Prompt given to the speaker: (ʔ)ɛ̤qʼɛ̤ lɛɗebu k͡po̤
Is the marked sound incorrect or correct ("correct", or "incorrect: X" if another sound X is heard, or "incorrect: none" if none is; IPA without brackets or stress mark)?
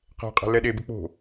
incorrect: q